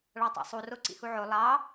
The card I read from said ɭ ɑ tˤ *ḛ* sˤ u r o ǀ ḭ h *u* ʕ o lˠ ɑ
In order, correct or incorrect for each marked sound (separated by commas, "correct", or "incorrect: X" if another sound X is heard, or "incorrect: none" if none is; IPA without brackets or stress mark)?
correct, correct